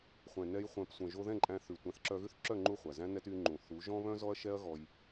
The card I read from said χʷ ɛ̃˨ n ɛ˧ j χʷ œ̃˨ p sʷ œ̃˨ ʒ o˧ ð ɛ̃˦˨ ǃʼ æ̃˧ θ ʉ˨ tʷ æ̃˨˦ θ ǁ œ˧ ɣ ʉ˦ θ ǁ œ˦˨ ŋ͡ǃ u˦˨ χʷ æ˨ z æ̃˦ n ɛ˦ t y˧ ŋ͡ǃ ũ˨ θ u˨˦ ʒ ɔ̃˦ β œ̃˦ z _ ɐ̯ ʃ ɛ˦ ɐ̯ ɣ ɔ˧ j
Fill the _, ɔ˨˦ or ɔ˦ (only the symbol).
ɔ˦